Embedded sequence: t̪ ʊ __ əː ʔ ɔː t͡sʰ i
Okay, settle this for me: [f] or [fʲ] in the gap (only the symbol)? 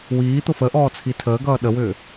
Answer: f